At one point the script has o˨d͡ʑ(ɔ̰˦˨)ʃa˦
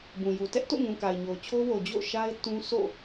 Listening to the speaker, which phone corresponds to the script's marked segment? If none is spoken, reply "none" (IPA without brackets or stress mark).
o̰˦˨